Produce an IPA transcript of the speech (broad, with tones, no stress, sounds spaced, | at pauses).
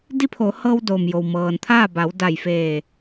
d i˧˥ pʰ o˩˧ h ɤː˧ w d oː˩ m j o˩ w m ɤː˩ n t̪ʰ aː˥˨ b a˩˧ w d a˧˩ j f eː˧˩